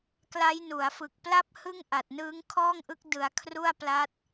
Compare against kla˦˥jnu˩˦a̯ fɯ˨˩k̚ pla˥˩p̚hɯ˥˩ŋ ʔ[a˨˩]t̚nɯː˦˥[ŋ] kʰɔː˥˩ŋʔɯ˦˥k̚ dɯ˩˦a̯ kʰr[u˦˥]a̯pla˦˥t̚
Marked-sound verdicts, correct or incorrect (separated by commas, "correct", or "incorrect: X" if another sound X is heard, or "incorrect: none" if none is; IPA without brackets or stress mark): correct, correct, incorrect: u˥˩